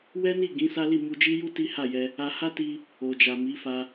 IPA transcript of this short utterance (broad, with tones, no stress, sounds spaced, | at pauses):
w ɛ˦ n i˦˨ ɡ ĩ˨˦ s a˦ l i˦˨ m u˧ d͡ʒ i˦ j u˦ t i˦ h a˦˨ j ɛ˧ | a˧ h a˦ t i˧ | o˨ d͡ʒ a˨ m i˨˦ f a˧